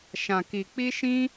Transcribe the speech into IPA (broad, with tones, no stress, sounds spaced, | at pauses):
ʃ ã˧ k i˧ k͡p i˦ ʃ ĩ˦